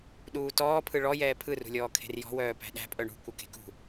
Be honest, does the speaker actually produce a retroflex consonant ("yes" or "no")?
yes